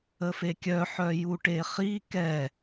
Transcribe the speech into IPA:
ə f e kʲ œ ħ œ j u ʈ e χ i k ɛ

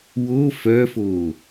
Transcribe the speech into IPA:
w o f œ f o

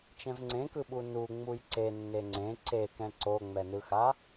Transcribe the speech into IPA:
t͡ʃ ɛ̃ v ŋ͡ǀ ẽ k ɯ ɓ u n u ŋ͡m u j ǀ e nː e ŋ͡ǀ ẽ ǀ e k ɛ̃ ǀ o ŋ͡m ɛ n ɯ x a

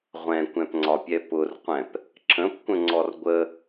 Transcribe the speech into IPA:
ʁʷ ɛ̃ kʷ ɛ̃ p ŋ͡ǀ ɒ pʲ ɛ p ʊ r qʷ ɛ̃ p | ǁ ə̃ p kʷ ə̃ ŋ͡ǀ ɔ r ɡʷ ə

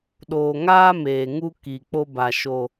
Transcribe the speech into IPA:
ɗ oː˨ ŋ aː˦ m eː˨ ŋ u˦ k i˨ k͡p o˦ b a˨ ʃ o˨

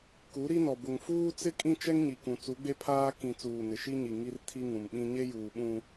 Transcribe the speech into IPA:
k u˨˦ ɾ i˦ n ɔ˨ b ʊ˨ ŋ f uː˦ t͡s ɪ˦ kʼ ĩ˦ t͡ʃ ɛ˦ ŋ ɲ i˨ k ũ˨ t͡s u˨˦ ɡ͡b e˦ pʰ aː˦ k ĩ˨ t͡s uː˨ n ɪ˨ ʃ i˦ ɲ i˨ ŋ i˦ r tʰ i˦ ŋ ũ˨ m ɓ ĩ˦ ɲ e˦ j uː˨ ɓ ũ˦

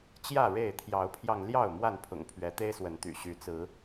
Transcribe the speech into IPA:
t͡ɕ j ä˥˨ ɻ e˥˨ ɪ̯ t̪ʰ j ɑ˨˦ ʊ̯ pʰ j ɑ˧ ŋ l j ɑ˥˨ ʊ̯ m w a˥˨ n pʰ ʊ̰˨˩ ŋ pʰ ɥ ɛ˨˦ t̪ e˦ ɪ̯ s w ə˨˦ n t̪ y̰˨˩ ɕ y˨˦ t͡s ɹ̩˨˦

